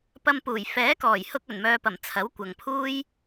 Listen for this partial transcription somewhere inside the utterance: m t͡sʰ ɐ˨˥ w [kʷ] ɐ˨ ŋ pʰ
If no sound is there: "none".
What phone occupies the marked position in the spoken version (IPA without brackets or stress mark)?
kʷ